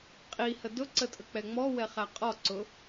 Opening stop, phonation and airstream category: ejective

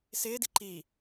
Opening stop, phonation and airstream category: plain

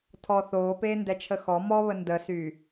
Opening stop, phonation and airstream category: aspirated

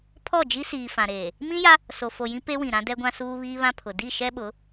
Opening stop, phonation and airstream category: aspirated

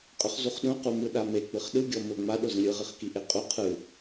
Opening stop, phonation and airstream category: ejective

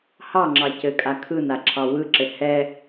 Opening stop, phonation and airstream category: click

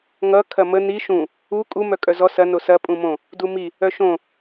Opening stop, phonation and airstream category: aspirated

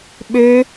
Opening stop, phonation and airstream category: implosive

